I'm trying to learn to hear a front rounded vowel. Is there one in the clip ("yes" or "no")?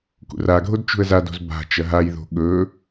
no